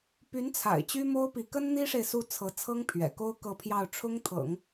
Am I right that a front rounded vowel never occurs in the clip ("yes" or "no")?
no